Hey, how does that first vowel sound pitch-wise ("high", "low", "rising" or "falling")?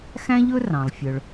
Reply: high